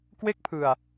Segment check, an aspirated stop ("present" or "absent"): present